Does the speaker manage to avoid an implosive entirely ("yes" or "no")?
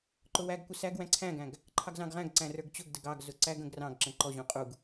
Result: yes